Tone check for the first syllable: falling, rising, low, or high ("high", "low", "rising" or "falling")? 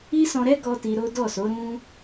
high